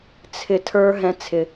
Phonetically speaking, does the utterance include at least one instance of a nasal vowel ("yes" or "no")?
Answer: yes